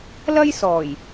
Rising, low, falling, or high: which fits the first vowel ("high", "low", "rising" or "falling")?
high